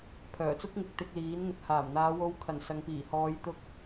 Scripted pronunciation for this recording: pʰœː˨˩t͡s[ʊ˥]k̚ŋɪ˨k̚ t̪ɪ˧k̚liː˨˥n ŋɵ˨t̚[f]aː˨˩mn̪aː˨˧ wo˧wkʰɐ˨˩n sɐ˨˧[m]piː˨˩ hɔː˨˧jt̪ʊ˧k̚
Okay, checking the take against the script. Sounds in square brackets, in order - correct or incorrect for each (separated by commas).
correct, incorrect, incorrect